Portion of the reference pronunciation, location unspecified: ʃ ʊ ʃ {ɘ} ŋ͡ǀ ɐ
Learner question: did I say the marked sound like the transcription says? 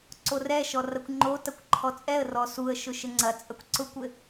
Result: yes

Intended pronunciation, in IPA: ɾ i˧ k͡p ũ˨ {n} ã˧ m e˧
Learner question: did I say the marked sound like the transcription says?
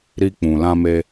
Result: no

